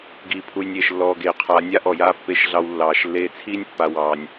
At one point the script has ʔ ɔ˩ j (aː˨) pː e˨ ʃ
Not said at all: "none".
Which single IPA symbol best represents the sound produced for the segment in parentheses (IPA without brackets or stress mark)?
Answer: aː˦